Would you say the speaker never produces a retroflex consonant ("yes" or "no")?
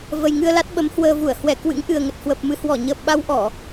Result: yes